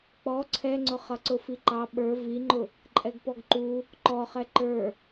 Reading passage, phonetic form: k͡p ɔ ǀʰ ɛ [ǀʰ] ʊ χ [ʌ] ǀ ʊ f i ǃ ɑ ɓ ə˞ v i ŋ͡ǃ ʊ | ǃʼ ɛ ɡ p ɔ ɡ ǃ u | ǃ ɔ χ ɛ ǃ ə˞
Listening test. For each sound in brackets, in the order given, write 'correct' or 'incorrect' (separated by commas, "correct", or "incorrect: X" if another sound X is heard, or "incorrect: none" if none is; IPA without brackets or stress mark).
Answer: incorrect: ŋ͡ǀ, correct